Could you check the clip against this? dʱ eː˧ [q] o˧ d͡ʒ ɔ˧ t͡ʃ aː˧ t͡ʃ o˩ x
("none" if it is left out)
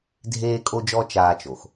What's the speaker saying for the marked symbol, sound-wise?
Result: kʼ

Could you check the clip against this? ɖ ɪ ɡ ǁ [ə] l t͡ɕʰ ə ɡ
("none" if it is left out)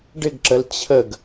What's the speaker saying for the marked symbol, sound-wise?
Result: ə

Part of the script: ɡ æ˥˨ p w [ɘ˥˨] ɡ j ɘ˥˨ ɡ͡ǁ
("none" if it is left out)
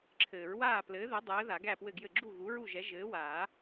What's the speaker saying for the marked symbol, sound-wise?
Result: ɘ˥˨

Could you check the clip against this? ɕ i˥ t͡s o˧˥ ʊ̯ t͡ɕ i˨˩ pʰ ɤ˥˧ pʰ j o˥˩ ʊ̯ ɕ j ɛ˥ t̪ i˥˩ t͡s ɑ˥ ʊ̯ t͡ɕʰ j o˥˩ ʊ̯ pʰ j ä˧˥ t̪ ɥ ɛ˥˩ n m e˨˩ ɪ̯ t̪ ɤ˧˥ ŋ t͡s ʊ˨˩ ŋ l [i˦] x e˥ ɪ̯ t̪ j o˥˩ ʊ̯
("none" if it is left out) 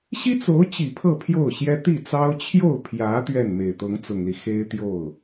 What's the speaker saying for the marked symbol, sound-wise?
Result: i˦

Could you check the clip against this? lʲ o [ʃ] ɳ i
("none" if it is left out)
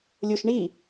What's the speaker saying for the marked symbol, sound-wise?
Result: ʃ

